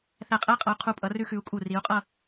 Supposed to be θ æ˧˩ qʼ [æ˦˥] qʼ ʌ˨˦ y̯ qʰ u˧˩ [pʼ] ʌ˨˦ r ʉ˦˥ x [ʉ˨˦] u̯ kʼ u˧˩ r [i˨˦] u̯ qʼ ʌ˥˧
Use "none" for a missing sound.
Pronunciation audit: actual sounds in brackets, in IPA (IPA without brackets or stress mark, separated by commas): æ˦˥, pʼ, ʉ˨˦, i˨˦